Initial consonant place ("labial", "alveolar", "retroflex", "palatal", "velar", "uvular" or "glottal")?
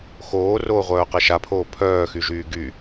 velar